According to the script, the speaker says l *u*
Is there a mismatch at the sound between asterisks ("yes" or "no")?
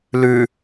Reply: yes